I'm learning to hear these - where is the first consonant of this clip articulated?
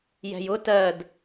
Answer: palate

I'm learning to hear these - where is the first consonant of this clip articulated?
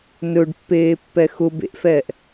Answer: tongue tip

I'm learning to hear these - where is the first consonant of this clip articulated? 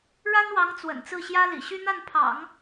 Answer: retroflex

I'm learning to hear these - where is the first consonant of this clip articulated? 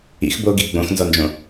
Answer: velum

